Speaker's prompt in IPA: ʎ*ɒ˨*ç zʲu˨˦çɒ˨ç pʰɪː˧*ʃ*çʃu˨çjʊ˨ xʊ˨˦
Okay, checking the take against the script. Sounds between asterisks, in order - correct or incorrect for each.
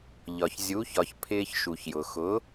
correct, incorrect

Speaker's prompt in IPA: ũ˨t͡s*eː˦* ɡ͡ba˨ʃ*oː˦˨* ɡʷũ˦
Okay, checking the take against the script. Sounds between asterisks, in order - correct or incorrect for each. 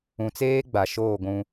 correct, correct

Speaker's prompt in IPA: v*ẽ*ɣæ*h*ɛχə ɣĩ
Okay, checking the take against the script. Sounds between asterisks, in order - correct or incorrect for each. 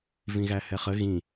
incorrect, correct

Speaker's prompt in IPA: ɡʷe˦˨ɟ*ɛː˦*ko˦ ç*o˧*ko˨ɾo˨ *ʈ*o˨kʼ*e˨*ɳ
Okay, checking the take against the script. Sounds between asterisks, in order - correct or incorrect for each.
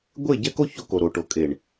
incorrect, correct, correct, correct

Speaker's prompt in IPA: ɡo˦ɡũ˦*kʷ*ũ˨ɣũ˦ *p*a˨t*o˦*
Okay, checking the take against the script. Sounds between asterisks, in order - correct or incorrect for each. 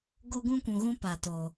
correct, correct, incorrect

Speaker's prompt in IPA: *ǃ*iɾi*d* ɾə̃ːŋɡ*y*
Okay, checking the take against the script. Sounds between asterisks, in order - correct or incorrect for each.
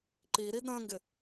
correct, correct, incorrect

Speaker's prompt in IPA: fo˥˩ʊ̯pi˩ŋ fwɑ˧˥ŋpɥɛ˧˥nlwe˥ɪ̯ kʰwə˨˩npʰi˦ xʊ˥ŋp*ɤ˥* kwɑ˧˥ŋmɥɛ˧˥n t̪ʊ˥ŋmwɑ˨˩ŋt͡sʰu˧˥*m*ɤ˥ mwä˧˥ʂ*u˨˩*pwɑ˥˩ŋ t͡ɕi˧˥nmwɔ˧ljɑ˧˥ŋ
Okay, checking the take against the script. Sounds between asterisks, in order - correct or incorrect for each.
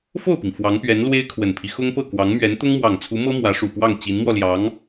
incorrect, correct, correct

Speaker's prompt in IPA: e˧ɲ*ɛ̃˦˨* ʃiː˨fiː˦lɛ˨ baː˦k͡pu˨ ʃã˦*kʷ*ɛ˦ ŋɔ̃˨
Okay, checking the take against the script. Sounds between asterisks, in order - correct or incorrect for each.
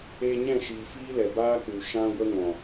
correct, incorrect

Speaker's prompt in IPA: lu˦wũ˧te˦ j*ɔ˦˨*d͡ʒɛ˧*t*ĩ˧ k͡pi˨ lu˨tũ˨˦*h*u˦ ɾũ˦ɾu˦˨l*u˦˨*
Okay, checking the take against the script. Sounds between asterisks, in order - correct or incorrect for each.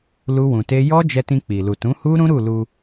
incorrect, correct, correct, incorrect

